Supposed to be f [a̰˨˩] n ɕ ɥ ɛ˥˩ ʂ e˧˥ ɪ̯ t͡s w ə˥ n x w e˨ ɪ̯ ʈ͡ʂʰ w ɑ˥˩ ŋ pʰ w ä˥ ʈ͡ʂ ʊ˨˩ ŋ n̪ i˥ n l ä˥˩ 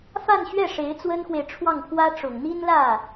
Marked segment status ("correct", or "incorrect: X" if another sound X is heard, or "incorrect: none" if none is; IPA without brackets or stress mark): incorrect: a˥˧